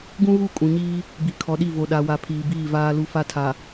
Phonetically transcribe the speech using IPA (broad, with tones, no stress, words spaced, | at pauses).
ɡũ˦ɣu˦˨ kʼũ˨ɲiː˦ | bi˨ kʰɔ˨˦ɗi˦˨ vo˨ɗa˨wa˨ pʰiː˨biː˦˨ vaː˦lu˦fa˦tʰa˨